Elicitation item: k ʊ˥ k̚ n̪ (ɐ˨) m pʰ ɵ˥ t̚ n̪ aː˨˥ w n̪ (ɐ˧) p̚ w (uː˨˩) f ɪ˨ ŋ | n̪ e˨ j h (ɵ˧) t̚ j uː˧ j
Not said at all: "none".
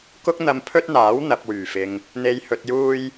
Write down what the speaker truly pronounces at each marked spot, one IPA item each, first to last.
ɐ˧, ɐ˨, yː˨˩, ɵ˨

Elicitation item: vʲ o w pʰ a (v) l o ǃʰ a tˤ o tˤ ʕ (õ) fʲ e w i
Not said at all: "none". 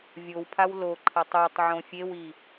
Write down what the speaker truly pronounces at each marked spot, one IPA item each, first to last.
w, õ

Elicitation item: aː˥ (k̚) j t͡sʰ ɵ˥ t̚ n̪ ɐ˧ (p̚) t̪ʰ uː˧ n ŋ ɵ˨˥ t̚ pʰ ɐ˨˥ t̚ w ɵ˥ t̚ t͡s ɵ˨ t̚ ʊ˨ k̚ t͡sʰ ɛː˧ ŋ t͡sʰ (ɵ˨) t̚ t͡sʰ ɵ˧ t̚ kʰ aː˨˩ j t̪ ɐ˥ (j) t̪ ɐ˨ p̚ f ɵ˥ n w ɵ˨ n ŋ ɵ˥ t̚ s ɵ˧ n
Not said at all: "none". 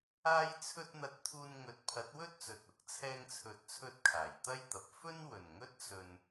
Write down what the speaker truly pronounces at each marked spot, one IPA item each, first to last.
none, t̚, ɵ˨, j

